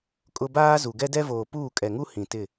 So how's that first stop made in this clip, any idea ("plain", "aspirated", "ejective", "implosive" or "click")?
ejective